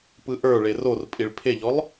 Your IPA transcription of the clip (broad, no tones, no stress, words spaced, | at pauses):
pɯʔə˞ɭe ror pʼiɭpʰeʎɔlˠ